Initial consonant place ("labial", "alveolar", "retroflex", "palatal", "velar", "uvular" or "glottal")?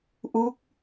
glottal